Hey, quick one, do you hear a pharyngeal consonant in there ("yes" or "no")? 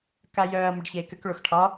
no